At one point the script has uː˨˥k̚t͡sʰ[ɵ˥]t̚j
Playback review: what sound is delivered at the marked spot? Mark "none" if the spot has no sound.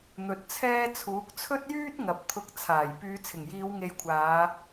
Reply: ɵ˥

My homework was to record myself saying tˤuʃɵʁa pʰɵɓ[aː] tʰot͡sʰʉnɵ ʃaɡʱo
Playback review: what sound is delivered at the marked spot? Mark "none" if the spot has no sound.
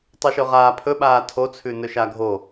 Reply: aː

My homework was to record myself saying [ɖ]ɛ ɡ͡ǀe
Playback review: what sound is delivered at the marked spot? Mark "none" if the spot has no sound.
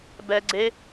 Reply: b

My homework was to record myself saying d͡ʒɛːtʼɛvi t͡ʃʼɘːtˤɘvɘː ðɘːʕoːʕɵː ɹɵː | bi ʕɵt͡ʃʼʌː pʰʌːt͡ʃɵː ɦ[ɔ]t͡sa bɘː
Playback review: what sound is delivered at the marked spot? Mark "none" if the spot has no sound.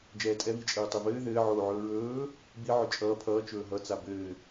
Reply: ʌ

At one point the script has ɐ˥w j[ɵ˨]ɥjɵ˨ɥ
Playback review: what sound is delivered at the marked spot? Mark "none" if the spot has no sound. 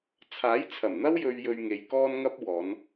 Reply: ɵ˨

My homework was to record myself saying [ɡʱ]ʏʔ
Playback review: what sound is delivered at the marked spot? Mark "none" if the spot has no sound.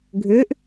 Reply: ɡʱ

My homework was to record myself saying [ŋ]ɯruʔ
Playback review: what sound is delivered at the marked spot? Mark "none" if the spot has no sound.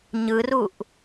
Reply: ɲ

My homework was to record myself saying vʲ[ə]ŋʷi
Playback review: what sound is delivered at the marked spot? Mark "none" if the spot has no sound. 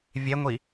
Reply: ɛ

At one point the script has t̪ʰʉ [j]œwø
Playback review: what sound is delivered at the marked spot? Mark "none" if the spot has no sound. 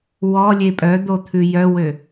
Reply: j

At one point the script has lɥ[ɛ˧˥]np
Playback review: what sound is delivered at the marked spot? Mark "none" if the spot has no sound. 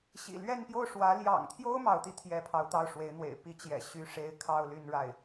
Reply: ɛ˥˧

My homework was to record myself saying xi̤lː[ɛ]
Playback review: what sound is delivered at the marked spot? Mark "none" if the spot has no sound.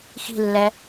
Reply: ɛ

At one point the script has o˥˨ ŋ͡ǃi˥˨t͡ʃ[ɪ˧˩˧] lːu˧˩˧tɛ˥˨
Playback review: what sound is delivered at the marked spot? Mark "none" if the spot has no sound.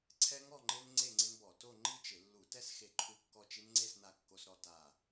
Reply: ɪ˧˩˧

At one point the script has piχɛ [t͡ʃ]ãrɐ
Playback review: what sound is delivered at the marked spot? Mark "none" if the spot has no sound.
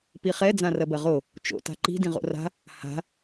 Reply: d͡z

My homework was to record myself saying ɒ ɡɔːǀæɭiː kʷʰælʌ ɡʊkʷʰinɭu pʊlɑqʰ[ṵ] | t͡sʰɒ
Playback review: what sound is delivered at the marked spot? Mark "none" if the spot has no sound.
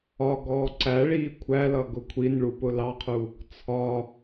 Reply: u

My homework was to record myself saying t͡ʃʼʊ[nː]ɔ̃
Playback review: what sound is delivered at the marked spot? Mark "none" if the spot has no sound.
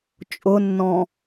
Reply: nː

